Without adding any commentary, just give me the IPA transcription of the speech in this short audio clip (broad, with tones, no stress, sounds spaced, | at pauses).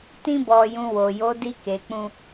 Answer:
t ĩ˧ b ɔ˨ j ũ˨ w o˨ j o˨˦ d i˧ k e˨ k͡p ũ˧